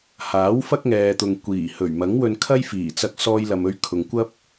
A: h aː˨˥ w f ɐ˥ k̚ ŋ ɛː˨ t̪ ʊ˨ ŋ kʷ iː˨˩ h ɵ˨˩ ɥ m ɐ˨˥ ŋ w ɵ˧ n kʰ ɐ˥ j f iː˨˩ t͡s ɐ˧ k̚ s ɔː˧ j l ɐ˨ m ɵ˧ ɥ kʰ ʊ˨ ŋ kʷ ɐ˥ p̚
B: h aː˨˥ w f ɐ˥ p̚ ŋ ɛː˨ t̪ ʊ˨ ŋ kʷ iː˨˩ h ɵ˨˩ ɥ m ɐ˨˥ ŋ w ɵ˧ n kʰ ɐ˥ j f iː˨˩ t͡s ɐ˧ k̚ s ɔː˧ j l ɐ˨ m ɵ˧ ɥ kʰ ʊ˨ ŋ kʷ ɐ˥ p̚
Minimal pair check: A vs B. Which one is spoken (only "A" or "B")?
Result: A